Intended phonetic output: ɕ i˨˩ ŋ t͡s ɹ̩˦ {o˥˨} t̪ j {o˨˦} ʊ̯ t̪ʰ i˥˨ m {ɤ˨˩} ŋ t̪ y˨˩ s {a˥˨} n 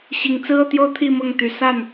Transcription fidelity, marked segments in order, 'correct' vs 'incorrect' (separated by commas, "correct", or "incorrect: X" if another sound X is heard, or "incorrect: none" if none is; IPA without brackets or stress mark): incorrect: ɤ˥˨, incorrect: o˦, incorrect: ɤ˥˨, correct